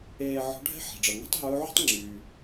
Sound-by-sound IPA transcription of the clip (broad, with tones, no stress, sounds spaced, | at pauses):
eː˧ ʕ ɔ̤˧˥ ɖʱ ɛ̤˥ ħ ɛ̤˩ ɖ͡ʐ ʌ˩ ŋ ɛ̤˥ tˤ ɦ ɵː˧˥ ʕ ṳ˥ tˤ ŋ͡ǁ yː˩